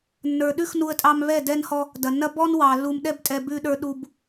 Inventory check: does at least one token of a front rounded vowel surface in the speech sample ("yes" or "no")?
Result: no